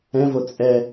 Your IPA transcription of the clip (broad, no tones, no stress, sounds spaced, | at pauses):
ɛ̃ v o t͡sʼ ɛ